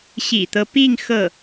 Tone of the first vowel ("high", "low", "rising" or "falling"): low